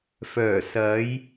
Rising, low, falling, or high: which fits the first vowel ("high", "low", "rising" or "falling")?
low